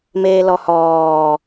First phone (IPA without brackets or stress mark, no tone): m